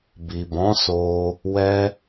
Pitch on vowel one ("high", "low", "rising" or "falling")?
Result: low